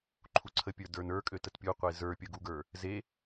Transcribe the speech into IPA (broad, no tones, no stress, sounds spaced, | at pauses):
ǃʰ u ǀʰ ə pʲ ə˞ d ə˞ n ə˞ kʼ ø t ə t pʲ u qʷ e z ə˞ pʲ ə˞ ɡ u ɡ ə˞ | z e